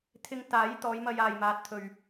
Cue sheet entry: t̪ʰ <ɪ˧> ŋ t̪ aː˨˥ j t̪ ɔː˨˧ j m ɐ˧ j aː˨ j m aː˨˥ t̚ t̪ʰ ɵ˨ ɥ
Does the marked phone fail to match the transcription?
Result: no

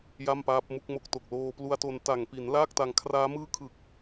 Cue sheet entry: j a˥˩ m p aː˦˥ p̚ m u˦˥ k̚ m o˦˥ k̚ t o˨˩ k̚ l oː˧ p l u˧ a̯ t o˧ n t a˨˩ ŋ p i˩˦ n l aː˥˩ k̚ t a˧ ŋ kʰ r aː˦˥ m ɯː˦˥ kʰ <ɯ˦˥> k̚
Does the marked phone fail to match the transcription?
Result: yes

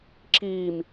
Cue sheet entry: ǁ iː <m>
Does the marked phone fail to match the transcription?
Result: no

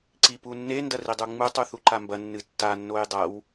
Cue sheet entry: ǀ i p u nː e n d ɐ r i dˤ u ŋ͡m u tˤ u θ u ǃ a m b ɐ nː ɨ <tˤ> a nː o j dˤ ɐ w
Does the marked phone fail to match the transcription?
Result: yes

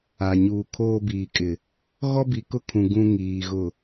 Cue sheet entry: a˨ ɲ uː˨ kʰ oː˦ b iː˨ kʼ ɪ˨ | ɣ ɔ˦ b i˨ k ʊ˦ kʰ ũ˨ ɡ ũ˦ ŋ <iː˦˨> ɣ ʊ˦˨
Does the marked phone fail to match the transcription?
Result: yes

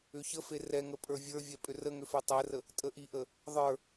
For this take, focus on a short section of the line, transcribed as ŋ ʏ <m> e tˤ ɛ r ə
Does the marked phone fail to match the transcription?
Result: yes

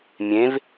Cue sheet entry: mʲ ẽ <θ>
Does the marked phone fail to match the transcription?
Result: yes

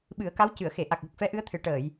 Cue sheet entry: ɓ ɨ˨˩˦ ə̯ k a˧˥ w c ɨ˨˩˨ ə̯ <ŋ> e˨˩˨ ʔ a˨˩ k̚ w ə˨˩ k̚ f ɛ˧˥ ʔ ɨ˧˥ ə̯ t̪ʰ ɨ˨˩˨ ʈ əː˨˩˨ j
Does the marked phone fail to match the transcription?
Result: yes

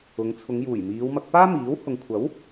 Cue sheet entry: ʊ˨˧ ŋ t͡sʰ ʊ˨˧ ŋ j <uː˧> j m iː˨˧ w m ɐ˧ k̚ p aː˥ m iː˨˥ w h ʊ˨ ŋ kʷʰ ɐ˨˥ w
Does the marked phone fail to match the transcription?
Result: yes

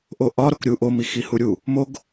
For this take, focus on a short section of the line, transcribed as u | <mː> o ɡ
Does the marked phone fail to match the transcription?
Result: yes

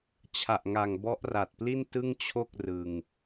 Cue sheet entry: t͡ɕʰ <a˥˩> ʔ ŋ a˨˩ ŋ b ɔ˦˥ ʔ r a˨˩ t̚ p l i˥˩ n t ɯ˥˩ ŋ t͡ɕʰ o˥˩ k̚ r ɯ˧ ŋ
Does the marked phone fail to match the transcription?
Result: yes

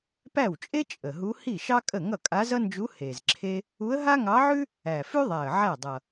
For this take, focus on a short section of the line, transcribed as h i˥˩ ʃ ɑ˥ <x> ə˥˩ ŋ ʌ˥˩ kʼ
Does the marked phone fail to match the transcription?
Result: yes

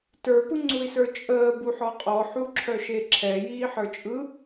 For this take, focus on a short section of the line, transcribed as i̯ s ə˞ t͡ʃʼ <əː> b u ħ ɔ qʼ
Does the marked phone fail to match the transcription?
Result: no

